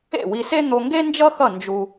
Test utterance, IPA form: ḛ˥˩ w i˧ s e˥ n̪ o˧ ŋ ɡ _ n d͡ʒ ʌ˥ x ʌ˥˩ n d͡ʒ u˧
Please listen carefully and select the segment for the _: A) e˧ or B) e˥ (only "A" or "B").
B